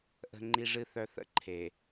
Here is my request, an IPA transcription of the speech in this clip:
ʔə̤˦ŋ͡ǃi˦ʐɨ˦θœ˦ θə̰˦ǃʰe˨

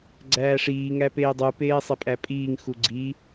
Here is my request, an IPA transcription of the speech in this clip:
ɡ͡ǀæːʂiː ŋæpeːdˤu peːsˤepʼæpʼiːŋ xuɡ͡ǀi

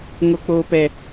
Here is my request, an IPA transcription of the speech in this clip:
ŋo˦k͡poː˦pɛ˦

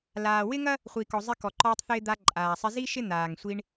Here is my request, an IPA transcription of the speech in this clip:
laː˩wɪ˥ŋɐ˥ | χʷi˩kɔ˩ zˤɪ˧kɔ˩ǃɔː˧tˤθɪː˧ d̪a˧ ǃʼaː˩sˤɪ˧ zi˥ ʃɪ˥ n̪aː˩ŋsʷi˧ɳ

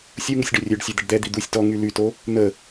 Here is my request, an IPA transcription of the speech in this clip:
sʲu ŋusʲɖœrʲøɖsʲœ d̪əɖd̪ɛd̪i d̪usʲ tɔ ŋylyto | n̪ə

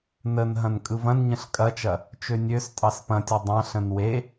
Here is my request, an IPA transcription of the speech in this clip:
nən ɦɐ̃nkʼɯvɐ̃nɲə̃ɬ kʼɐt͡ʃɐ | t͡ʃønʲøs tʼɑspɐ̃tʲɐ dˤɑ̃ ɬə̃nwe

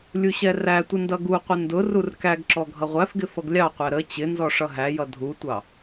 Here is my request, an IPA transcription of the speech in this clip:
lʲuɕɛrætʷɪ ndʌɡuqʷɪ ndʊ rurkæɡǁɔ ɡʱʌʁʷæfɡɪ fʌɡlʲɑqʷæ ɾə t͡ɕɪ nzɔʂʌɦæjʌ dʱutʷɑ

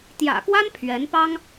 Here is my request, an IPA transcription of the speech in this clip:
t̪jä̰˨˩kwa˥n pʰɥɛ˧˥npɑ˥ŋ

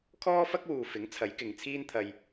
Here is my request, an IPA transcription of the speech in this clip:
kʰɔː˥fɐ˥k̚wuː˨ fɪ˨˥ŋ t͡sʰɐ˨˥jkɪ˨ŋt͡sʰiː˥nt̪ʰɐ˧j

